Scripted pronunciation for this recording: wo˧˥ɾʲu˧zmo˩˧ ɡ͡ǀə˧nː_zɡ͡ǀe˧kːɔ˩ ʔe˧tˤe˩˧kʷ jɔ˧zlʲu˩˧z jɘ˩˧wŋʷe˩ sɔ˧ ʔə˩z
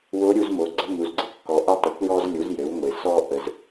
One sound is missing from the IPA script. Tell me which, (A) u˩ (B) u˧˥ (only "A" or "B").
A